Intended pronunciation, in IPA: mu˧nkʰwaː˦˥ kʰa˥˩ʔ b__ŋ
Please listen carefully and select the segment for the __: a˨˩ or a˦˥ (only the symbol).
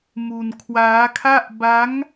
a˦˥